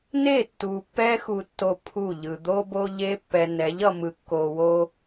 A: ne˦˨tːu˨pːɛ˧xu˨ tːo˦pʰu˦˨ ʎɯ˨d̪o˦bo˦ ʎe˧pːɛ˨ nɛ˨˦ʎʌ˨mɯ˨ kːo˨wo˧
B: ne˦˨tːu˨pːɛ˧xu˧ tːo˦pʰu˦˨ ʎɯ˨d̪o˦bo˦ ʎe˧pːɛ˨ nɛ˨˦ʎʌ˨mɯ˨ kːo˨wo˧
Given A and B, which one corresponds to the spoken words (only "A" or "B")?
A